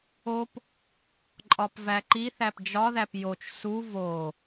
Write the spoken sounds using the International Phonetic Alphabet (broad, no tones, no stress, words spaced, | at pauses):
op | ǃʼɒpvæǃiθæp d͡ʒɒðæp jot͡ʃ su vo